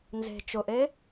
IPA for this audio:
n z e̤ t͡ʃ ʊ ʔ e

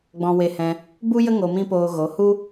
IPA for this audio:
ɡ͡b ɔ̃˧ w e˧ h ɛ̃˧ | b u˦ j ə˦ ŋ o˧ m ĩ˦ p oː˧ ɣ o˨˦ h u˦

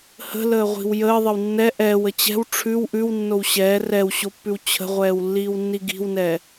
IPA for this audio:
h ə̤ l əː ʁʷ i̤ w j əː ðˤ ə w nː ɛ ʔ ɛː w ə t͡ɕ ɛ̤ w ʈ͡ʂʰ ʉ w ʔ ʉ w nː o w ɕ ɛː r ɛ w ɕ o pː ʉ w t͡ɕʰ ə̤ ʁʷ ɛː w lː iː w nː i ɡ i̤ w n ɛ

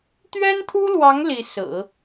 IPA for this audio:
t̪ ɥ ɛ˥ n t̪ʰ u˥ l w ɑ˧˥ ŋ l i˧˥ s ɹ̩˨˩˦

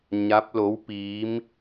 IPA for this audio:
ɲ a˧˥ p̚ l o˧˥ w p iː˧˥ m

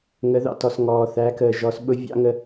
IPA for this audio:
ŋ ə˩˧ ð ɑ̰˩ t ɔ˩ s ŋ ɔː˩ θ æ˩˧ k əː˩ ʒ ɔ˩˧ s ɓ ʊ˧˥ vʲ ɑ̰˧˥ ŋ ə˧

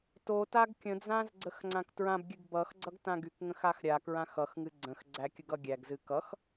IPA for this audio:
t o t a ɡ kʲ ə̃ d͡z ã z ɡ͡ǀ ə x ŋ͡ǀ ã k t ɹ ã b ɡʲ ɨ ɡ b ʌ x ɡ͡ǀ ʌ ɡ t ã ɡ y k ŋ ə̃ x a x ɾʲ a k ɹ ã x ʌ x ŋ ɨ ɡ͡ǀ ə̃ x ɡ͡ǀ æ kʲ ə ɡ ʌ ɡʲ æ ɡ z ɨ k ʌ x

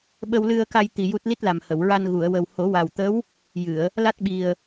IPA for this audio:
ɓ ə˧ w l ɨ˧ ə̯ k a˧ j t̪ i˧ j u˦˥ t̚ l i˦˥ t̚ l a˨˩ m h ə˨˩˨ w ɹ a˧ n ɣ u˨˩˨ ə̯ w ə˨˩ w h o˨˩˦ w a˨˩ w t̪ ə˧˥ w | j ɨ˨˩˨ ə̯ | l a˦˥ t̚ ɓ i˨˩ ə̯

